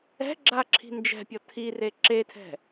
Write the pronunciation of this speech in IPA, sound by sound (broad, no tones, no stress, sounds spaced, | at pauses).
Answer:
ɛ̤ ɡ͡ǁ a ǁʰ i̤ n d͡ʒ ɛ̤ pʲ ɔ tʰ i r e ǁ e tʰ ɛ̤